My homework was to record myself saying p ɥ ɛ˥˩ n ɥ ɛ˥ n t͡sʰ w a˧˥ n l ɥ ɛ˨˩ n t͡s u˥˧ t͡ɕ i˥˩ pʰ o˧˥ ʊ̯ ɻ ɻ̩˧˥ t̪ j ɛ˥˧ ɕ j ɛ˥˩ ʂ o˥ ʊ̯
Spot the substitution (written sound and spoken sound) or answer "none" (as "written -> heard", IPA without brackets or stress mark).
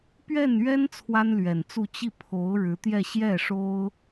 a˧˥ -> a˥